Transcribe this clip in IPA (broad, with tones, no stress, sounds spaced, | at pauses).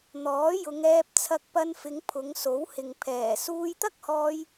n̪ ɔː˨˥ j ʊ˨˧ ŋ ɛː˧ p̚ t͡sʰ ɐ˧ k̚ p ɐ˧ n f ɪ˨˧ ŋ pʰ ʊ˨˧ ŋ s o˨˥ w h ɪ˨ ŋ pʰ ɛː˨˩ s uː˧ j t̪ ɐ˥ k̚ h ɔː˧ j